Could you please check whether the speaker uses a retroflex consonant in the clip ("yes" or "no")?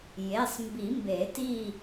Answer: no